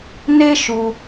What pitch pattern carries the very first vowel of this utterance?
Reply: high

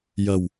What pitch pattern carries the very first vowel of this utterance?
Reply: low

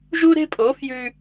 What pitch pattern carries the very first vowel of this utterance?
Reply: high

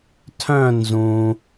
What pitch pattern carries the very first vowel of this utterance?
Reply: falling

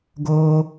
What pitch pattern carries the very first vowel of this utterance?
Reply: high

